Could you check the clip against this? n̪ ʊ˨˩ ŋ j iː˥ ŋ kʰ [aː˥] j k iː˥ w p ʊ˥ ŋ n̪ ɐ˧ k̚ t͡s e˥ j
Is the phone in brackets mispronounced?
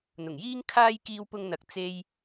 no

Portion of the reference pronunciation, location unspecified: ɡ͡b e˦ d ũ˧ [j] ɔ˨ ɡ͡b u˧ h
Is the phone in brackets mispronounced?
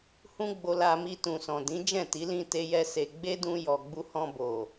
no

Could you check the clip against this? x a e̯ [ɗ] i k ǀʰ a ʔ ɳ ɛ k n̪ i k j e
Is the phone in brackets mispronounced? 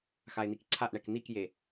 yes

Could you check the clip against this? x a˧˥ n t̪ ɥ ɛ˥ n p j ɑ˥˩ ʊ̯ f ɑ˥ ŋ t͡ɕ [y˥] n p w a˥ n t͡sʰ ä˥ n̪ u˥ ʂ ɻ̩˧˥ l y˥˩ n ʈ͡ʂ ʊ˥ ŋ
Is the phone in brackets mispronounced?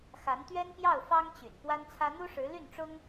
yes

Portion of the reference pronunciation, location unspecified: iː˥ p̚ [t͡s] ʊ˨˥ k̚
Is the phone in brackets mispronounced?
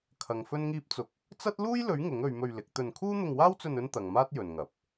no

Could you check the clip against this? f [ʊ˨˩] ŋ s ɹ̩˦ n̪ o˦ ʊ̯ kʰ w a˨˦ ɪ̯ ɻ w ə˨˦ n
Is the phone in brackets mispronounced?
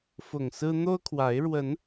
no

